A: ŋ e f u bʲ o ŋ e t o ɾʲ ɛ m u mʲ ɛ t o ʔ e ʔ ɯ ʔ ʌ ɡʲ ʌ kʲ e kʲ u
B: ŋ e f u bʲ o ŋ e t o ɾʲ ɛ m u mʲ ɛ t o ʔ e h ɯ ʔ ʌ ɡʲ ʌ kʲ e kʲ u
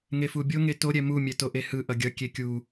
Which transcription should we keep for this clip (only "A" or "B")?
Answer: B